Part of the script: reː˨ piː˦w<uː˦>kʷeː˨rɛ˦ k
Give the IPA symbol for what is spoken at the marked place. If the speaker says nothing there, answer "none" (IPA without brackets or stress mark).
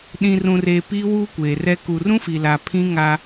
uː˦